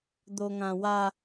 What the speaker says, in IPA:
d̪ o ŋ ã w a

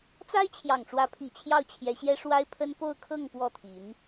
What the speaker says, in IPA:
t͡s a˥ ɪ̯ t͡ɕʰ j ɑ˨˩ ŋ ʈ͡ʂ w ä˧˥ pʰ i˨˩ t͡ɕʰ j ɑ˥˩ ʊ̯ t͡ɕʰ j ɛ˧˥ ɕ j ɛ˥ ʂ w a˥ ɪ̯ pʰ ə˥ n p o˥˧ ʊ̯ kʰ ɤ˥˧ ŋ p w ɔ˥˩ t̪ʰ i˧˥ n

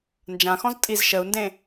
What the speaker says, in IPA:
n d͡ʒ ã x ɔ̃ z tʼ i z ʃ ə u̯ n d ẽ

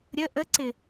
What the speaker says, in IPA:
ɾʲ ə ʔ ə ǀ ɪ

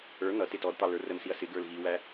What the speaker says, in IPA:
ə˞ n̪ ʌ t ɪ t ɔ d t̪ ɑ l ə˞ r ə m s i ɐ̯ s ɪ ɡ ə˞ l ɣ i w æ

